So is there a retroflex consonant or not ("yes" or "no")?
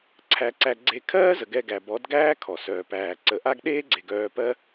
no